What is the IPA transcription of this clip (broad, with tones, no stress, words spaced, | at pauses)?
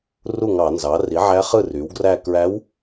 ru˥˩ŋɑ˧˩˧nzɑ˩˥ ri˩˥ʕæ˧˥χɯ˥˩ ry˩˥wɡræ˥˧ kɹæ˧˥w